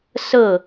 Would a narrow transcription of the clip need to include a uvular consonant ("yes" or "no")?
no